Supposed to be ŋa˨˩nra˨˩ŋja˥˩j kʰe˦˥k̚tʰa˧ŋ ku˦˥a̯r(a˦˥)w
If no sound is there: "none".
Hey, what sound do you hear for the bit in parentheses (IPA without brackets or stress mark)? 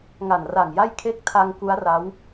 a˦˥